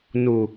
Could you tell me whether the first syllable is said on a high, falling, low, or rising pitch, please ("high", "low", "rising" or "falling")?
low